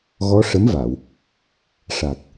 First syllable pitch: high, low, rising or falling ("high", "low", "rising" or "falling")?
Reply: rising